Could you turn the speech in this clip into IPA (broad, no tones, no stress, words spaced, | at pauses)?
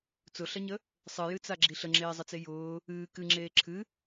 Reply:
t͡sʊɬɐɲə | sˤɨjɨt͡saɡ͡ǁi ɬəŋ͡ǁeːzˤət͡se jʊː | ɨː kɨŋ͡ǁeː ǁʰɨ